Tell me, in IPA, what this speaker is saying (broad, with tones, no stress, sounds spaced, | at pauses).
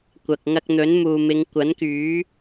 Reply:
kʷ ɐ˨ k̚ ŋ ɐ˧ k̚ n̪ ɵ˨˥ n m uː˨ m ɪ˨˧ ŋ kʷ ɐ˨˥ n k yː˨˥